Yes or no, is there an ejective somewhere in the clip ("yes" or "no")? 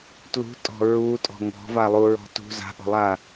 yes